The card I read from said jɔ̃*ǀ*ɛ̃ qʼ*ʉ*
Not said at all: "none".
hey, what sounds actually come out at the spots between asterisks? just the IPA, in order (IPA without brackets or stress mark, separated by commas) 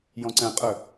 ǀ, ə